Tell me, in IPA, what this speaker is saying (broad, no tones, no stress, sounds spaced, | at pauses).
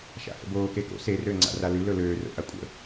ʃ a̰ h ə̰ b oː k e k o̰ s e r øː ŋ͡ǀ a̰ r a l ʉ l ɵ l øː r o̰ ʔ a kʷʼ ə̰